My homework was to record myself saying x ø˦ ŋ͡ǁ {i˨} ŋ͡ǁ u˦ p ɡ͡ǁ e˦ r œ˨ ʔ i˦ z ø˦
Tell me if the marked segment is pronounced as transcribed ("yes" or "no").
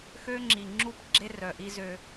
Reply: yes